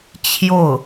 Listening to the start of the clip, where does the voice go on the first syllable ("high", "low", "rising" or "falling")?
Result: falling